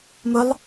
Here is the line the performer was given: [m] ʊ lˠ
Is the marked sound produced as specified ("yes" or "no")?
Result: yes